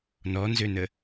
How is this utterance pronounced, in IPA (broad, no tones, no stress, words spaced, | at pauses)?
nɔnzønə